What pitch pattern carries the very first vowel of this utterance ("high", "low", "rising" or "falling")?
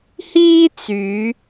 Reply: high